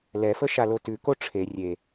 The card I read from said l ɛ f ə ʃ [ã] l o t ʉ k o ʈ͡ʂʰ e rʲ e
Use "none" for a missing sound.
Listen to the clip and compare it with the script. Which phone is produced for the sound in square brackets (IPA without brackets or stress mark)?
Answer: a